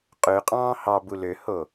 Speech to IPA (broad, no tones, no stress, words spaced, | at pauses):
qʼøqʼɑ̃ː hɑbu løho